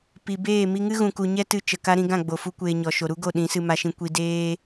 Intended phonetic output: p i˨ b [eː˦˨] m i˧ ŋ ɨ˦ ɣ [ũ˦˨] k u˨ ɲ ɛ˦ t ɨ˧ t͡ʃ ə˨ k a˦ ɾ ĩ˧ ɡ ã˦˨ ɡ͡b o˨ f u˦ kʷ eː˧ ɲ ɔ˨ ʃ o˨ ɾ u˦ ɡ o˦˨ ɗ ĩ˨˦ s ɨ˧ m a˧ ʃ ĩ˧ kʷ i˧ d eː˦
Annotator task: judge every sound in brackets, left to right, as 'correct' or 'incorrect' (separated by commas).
correct, incorrect